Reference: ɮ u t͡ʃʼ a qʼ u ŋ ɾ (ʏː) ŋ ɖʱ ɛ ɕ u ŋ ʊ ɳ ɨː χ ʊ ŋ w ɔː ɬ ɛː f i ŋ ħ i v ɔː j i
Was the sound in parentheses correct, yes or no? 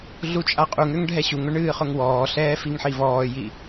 no